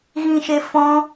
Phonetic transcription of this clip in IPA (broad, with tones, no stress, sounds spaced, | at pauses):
ɣ ĩ˧ ʃ e˧ f ɔ̃˦